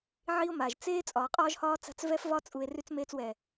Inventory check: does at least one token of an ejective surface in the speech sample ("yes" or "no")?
yes